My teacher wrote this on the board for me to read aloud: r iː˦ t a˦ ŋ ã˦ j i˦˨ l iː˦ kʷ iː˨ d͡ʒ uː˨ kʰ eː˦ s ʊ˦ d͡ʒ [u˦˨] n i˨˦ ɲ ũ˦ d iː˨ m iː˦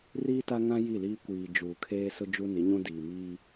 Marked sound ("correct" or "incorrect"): incorrect